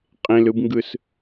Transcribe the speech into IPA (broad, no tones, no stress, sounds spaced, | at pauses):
qʼ ẽ l ɯ b ŋ ɡ ɯ s